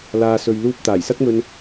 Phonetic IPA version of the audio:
l aː˨ s ɵ˨ ɥ l uː˧ p̚ t̪ aː˨˩ j s ɐ˥ k̚ m ɵ˧ n

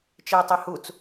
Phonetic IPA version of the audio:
t͡ʃ ɪː tˤ e h u t͡s

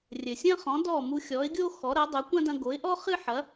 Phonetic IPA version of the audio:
rʲ ɘ˩ sʲ ɐ̃˥ χ ɔ̃˩˥ d ɔ˥˩ m u˧ xʲ ɔ˩˥ ɪ̯ ɡʲ o˥ x ɔ˩˥ ɾ ɐ˩˥ dˤ o˩˥ kʷ ɐ̃˥ d ɐ̃˧ ɡ o˩˥ ɪ̯ ʔ ɔ˥ χ ɨ˥ ħ ɐ˩˥

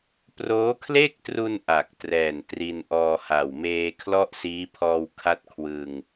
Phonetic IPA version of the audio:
p r oː˦˥ kʰ l e˥˩ k̚ t r u˧ n ʔ a˨˩ k̚ t r ɛː˨˩ n t r i˧ n ʔ ɔː˧ h a˨˩ w m eː˧ kʰ l ɔ˥˩ ʔ s iː˦˥ pʰ ɔː˧ w kʰ a˥˩ t̚ kʰ w ɯ˧ ŋ

